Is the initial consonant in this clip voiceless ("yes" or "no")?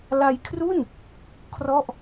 no